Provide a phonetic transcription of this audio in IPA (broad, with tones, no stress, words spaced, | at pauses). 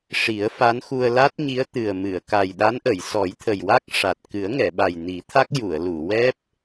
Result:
ʂi˨˩˦ə̯fa˧˥nxu˧ə̯ la˦˥t̚ɲi˧˥ə̯ t̪ɨ˨˩ə̯mɨ˨˩˨ə̯ ka˨˩jɗa˧˥nʔə˨˩˨j sɔ˨˩˦jt̪ʰə˨˩jwa˦˥k̚ ʂa˨˩t̚ kɨ˨˩˦ə̯ŋɛ˨˩˨ɓa˨˩j ni˨˩˦t̪ʰa˦˥k̚ ju˨˩˨ə̯lu˨˩˨wɛ˦˥p̚